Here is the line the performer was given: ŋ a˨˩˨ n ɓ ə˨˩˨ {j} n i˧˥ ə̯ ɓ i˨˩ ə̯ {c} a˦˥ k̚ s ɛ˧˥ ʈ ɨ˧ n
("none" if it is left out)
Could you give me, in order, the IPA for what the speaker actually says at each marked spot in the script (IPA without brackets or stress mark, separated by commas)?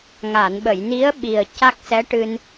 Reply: j, c